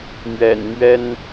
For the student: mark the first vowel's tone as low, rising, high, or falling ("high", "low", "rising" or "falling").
low